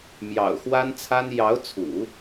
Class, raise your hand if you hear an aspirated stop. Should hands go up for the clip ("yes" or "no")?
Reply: yes